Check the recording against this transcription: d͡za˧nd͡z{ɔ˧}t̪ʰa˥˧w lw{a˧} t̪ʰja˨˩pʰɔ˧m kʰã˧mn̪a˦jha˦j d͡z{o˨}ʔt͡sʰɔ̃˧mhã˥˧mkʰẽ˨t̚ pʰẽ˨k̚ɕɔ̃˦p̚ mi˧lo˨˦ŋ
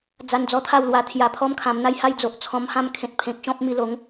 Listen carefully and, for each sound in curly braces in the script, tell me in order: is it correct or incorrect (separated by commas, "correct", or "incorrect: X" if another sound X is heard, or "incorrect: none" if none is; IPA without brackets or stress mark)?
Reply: correct, correct, correct